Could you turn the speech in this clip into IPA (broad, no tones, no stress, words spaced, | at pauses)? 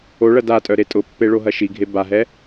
oɭɐ datʼœ ɾetʼʊpːe ɭoɦɐʃiɡʱe baɦɛ